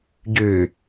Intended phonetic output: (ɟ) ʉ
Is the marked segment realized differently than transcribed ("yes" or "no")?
no